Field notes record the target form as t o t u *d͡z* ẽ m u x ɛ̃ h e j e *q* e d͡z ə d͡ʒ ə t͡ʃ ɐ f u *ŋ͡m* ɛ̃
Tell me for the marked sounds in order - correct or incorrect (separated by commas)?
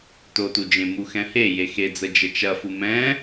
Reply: incorrect, incorrect, incorrect